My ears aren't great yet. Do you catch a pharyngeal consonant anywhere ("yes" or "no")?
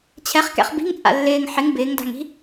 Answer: yes